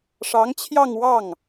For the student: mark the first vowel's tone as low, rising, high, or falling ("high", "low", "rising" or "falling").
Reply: rising